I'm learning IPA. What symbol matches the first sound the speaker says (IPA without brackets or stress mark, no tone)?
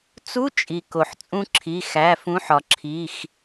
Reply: t͡s